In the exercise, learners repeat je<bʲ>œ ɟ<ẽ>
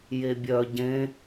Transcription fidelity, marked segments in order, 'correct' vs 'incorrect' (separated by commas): correct, correct